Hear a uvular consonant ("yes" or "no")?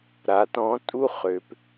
yes